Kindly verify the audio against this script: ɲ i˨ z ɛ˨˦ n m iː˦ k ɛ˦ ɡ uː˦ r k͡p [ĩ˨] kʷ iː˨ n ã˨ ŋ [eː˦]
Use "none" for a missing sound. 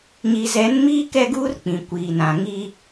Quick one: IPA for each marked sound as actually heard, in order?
ĩ˨, iː˦

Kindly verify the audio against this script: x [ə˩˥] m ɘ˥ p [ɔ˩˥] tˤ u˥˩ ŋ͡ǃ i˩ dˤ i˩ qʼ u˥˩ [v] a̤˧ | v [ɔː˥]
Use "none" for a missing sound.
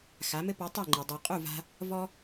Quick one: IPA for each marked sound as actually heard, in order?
a˩˥, ɔ˩˥, v, ɔ˥

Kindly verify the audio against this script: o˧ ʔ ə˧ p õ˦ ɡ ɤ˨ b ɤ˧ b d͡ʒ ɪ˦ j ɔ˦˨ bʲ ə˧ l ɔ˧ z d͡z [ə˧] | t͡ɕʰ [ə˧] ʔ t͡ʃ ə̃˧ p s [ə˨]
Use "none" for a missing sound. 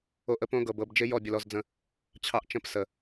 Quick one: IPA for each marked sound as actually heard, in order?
ə̃˧, ɑ˧, ə˨

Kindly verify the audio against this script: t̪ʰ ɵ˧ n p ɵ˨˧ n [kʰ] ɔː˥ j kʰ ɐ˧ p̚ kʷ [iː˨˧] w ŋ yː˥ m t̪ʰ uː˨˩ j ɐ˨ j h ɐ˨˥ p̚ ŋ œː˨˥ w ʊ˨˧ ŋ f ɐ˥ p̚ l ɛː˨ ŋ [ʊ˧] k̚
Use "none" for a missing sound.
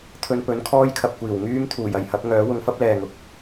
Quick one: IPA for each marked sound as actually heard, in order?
kʰ, iː˨˩, ʊ˨

